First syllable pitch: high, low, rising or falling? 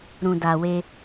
low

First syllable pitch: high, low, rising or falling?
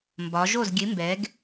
rising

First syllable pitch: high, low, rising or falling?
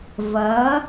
rising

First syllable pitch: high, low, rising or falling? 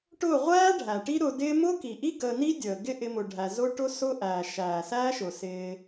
falling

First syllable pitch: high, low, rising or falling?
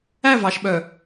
falling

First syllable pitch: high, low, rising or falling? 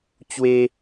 high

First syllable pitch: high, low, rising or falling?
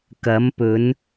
rising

